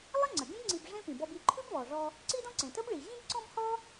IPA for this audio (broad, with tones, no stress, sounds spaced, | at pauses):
lˠ ə˥ ŋ͡ǀ ə˩ ɡʲ ə̃˥ b ŋ͡ǀ i˧ b ʐ ẽ˥ p ĩ˩ b ɔ˧ b i˧ ǃʰ ʉ˥ b β ɔ˩ ʐ ɔ˧ | ǀ i˥ d ɔ̃˥ ǀ ẽ˩ t ə˥ b ɭ i˩ ʑ ĩ˥ b ǀ ɔ̃˥ b h ɔ˥